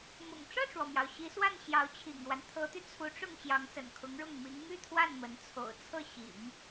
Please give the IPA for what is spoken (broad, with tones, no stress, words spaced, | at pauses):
mʊ̰˨˩ŋ ʈ͡ʂɤ˥˩ʈ͡ʂwɔ˩mjɑ˩ʊ̯ ɕi˧˥swa˥˩n ɕjɑ˧˥ʊ̯t͡ɕʰḭ˨˩ŋɻwa˦n t̪ʰɤ˧˥t̪y˧t͡sʰu˧˥ʈ͡ʂʊ˥˩ŋ ɕjɑ˧˥ŋsə̰˨˩nkʰʊ˧˥ŋɻʊ˥˩ŋ mi˧˥ŋ my˥˧t̪ʰwa˥˩n mə˧˥n t͡sʰo̰˨˩ʊ̯ t͡sʰɤ˥˩ ɕḭ˨˩˦ŋ